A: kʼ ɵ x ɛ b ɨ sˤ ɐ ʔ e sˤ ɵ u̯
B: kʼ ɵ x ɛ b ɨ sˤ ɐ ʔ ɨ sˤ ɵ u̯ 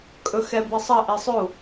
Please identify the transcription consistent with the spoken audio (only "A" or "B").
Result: A